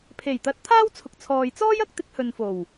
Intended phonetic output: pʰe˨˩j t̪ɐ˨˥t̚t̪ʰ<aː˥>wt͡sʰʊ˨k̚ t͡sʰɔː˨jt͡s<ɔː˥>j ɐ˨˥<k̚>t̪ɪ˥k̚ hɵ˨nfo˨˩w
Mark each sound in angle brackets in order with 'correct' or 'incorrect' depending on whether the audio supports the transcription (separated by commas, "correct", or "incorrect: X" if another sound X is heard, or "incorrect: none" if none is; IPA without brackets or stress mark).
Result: correct, correct, correct